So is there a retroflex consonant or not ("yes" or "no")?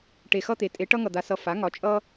yes